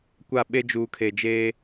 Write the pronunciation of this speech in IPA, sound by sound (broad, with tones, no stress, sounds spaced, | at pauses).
kʷ a˦˨ ɓ e˦ d͡ʒ uː˨ kʰ e˨ d͡ʒ eː˦